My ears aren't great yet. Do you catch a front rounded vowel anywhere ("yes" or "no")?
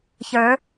no